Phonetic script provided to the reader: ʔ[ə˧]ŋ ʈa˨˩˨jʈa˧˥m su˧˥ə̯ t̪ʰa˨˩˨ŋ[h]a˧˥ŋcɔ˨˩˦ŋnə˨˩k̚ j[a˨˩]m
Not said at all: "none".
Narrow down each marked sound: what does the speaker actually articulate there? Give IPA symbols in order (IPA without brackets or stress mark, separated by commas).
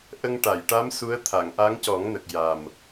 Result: ə˧, ʔ, a˨˩